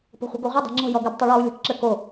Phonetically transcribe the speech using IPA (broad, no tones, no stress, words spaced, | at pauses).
po̤χʷə̤ ɡoʁʷɘ dˤo̤ŋ͡ǁɔ̤ jɔɡɘb tˤuɭɔu̯ lʲɔ̤kǁɘ ko